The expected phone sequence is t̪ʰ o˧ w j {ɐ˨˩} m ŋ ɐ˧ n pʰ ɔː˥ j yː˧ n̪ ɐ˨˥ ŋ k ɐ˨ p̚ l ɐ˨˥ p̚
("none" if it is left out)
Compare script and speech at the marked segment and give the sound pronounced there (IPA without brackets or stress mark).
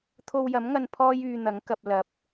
ɐ˨˥